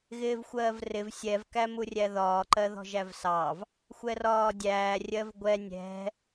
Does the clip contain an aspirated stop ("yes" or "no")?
no